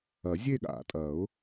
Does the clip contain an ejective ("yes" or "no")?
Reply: yes